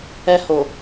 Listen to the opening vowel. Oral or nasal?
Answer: oral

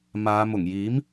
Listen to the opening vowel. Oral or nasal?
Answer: oral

